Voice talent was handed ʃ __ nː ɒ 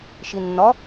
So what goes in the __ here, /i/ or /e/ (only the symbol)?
i